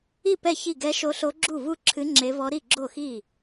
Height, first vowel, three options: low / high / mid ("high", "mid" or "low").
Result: high